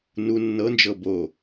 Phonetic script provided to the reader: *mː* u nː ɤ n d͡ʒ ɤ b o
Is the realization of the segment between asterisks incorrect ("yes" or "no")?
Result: yes